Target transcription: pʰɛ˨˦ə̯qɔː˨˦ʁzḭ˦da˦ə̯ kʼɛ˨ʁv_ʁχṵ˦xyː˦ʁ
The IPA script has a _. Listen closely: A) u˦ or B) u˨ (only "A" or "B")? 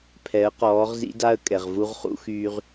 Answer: A